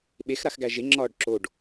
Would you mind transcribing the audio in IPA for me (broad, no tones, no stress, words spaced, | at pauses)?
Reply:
ɓex ɾaxɡæʒe ŋ͡ǁɒːɖǁoɖ